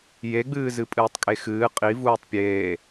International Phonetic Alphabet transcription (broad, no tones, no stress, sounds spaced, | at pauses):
j e ɡ͡b ɨː z ɨ pʼ ɨː tˤ kʼ e x ɨː qʼ i v uː tˤ pʲ eː